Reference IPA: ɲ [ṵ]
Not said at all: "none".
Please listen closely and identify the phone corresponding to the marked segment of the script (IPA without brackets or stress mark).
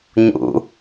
ṵ